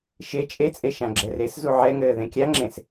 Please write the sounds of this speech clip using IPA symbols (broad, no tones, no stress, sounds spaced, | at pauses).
ʃ e t͡ʃʼ e t͡sʼ e ʃ ã ɡ͡ǁ ɛ r e s z u ʕ ɛ ŋ ɘː ð ẽ kʲ a ŋ͡ǁ ẽ s